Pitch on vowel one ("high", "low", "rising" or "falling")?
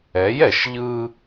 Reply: rising